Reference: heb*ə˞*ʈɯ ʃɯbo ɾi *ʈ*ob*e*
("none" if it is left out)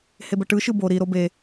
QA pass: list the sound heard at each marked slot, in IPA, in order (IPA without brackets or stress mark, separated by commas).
ə, ɾ, e